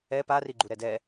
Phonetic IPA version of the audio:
ɛ p a r i ɡ͡ǃ u ɾ ɛ d ɛ

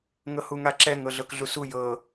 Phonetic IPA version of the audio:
ŋ ɤ h u ŋ a ǁ ɛ ŋ ɤ ɮ ɤ k ɮ u s u j ɤ

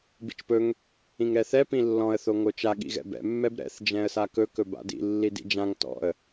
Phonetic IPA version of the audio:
b ḭ t͡ʃ p ɵ ŋ | ĩ ŋ ɾ ɛ θ ɛ p ĩ lː ɔ̃ ə̯ θ o ŋ o t͡ʃ a ɠ ḭ ɣ ɛ̰ b ɛ̰ mː ɛ b ɾ ɛ̰ θ d͡ʒ ɛ̃ ə̯ s a k ɵ k ɵ b a̰ d ḭ lː i d ḭ d͡ʒ ã ŋ t ɔ̰ ə̯

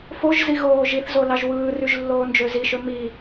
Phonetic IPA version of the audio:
f o ʒ z i ɣ oː ʒ i θ z o l ɑ ʒ w ɯː r y ʒ lː oː n d͡ʒ ø z i ʃ ø m i

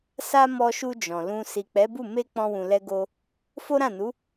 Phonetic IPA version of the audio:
s a˦ m ɔ˧ ʃ u˧ d͡ʒ ɔ̃˨ l ũ˧ s i˨ k͡p ɛ˨˦ b u˦˨ m e˧ k͡p ɔ̃˧ w ũ˨ l ɛ˧ ɡ o˧ | f o˦ ɾ ã˦˨ n u˨˦

